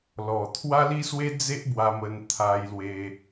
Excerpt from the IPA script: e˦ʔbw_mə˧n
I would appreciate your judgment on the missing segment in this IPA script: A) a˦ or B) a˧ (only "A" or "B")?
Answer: B